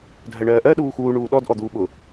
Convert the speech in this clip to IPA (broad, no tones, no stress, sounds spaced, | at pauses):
dʱ ɜ ɳ ɜː ʔ ɜ ɗ uː x uː ɳ uː ɗ ɔ d ʔ ɔ d̪ uː ɓ ʊ